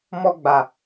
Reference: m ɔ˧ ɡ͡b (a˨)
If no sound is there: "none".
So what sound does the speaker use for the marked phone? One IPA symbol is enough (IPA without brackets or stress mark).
a˨